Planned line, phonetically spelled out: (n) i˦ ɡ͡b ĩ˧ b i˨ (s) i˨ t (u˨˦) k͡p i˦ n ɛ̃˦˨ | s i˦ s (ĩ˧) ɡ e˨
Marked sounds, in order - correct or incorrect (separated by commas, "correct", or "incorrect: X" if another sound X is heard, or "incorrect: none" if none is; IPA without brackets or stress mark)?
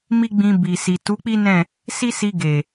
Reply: incorrect: m, correct, correct, incorrect: i˧